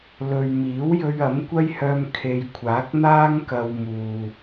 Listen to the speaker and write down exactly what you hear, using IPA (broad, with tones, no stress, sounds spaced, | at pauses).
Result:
l ɵ˨ ɥ m iː˨˥ w j ɵ˧ ɥ ɐ˨˥ m kʷ ɐ˥ j h œː˧ m kʰ e˨ j kʷʰ aː˨˥ k̚ n̪ aː˥ ŋ k ɐ˧ w m uː˨